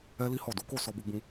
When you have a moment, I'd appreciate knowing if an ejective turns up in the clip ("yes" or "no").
no